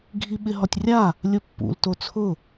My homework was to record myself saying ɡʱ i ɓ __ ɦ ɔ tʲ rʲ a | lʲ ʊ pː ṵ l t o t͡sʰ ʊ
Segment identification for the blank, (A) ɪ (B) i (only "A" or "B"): A